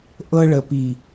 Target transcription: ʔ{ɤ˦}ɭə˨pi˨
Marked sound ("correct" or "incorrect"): correct